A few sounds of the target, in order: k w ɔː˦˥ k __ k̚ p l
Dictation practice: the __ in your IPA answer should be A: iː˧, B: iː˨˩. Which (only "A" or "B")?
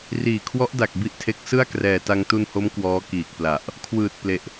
B